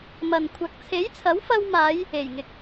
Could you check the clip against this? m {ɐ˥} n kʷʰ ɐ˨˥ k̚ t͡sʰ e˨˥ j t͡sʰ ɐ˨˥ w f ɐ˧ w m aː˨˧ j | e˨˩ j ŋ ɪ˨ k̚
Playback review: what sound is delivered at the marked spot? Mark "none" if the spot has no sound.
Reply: ɐ˨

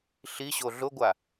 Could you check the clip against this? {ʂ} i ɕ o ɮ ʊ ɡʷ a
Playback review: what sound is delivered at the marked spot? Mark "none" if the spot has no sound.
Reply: ɬ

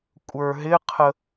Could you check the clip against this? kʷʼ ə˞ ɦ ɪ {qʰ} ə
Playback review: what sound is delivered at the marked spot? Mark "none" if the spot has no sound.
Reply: qʰ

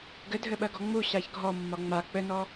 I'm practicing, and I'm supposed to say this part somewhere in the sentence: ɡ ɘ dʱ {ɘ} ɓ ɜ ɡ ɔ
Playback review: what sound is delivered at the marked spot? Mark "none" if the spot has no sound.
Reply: ɘ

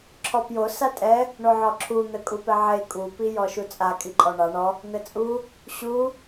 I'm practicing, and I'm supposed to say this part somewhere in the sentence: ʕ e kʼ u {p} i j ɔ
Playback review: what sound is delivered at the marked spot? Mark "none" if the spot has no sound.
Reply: p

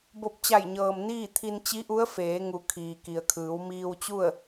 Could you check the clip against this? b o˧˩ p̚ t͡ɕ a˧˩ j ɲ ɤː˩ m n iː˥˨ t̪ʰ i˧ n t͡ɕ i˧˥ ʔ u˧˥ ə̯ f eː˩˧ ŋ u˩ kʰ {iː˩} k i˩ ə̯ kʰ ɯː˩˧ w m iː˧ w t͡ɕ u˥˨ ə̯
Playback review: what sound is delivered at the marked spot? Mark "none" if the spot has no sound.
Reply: iː˩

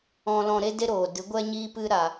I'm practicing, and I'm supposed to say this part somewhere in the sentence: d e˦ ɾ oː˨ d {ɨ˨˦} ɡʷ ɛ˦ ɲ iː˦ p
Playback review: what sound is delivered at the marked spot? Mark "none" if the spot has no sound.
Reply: ɨ˨˦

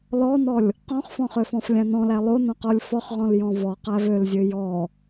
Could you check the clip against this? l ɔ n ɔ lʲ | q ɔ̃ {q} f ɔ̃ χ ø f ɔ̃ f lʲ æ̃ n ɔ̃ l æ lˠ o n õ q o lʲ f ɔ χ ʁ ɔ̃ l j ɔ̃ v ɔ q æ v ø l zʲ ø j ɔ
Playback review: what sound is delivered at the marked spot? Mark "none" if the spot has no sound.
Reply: χ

